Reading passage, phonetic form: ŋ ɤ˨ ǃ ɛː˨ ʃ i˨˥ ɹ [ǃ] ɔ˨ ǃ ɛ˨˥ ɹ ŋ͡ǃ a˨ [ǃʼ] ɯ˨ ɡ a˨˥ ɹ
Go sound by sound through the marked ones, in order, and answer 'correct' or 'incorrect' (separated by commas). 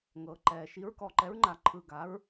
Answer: incorrect, incorrect